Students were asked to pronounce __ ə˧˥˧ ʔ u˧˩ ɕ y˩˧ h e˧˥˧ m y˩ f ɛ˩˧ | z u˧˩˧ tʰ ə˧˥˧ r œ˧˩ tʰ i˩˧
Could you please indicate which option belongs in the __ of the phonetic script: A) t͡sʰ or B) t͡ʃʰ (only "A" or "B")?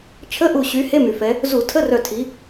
B